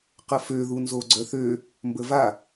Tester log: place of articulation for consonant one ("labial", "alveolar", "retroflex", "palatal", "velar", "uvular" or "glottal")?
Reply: uvular